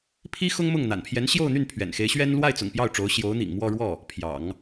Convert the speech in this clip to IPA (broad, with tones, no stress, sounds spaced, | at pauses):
pʰ i˥ x ʊ˥ ŋ m ʊ˥˩ ŋ n̪ a̰˨˩ n pʰ j ɛ˧˥ n ɕ j o˥˧ ʊ̯ n̪ y˥˩ n pʰ ɥ ɛ̰˨˩ n x e˧˥ ɪ̯ ɕ ɥ ɛ˥ n l w a˥˩ ɪ̯ t͡s ʊ̰˨˩ ŋ p j ɑ˥˩ ʊ̯ ʈ͡ʂ o˧˥ ʊ̯ ɕ j o˧˥ ʊ̯ n̪ ḭ˨˩ ŋ m w ɔ˥˧ ɻ w ɔ˥˩ | pʰ j ɑ̰˨˩˦ ŋ